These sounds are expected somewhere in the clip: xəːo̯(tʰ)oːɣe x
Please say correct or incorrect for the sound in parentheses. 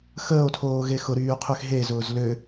correct